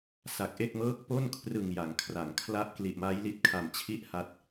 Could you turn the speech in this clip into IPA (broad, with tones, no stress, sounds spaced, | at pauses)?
s a˨˩ k̚ ʔ e˥˩ k̚ m ɤː˥˩ k̚ p o˥˩ n kʰ r ɯ˨˩ ŋ j a˩˦ ŋ kʰ r a˩˦ ŋ kʰ l a˦˥ ʔ k l i˨˩ ʔ m a˦˥ j l i˦˥ t̚ kʰ a˨˩ m t͡ɕʰ i˥˩ ʔ h a˦˥ t̚